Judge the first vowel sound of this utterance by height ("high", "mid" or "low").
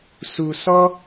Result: high